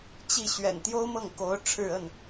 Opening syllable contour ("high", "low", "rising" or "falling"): falling